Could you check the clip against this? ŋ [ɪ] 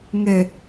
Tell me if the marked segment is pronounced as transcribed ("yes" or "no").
no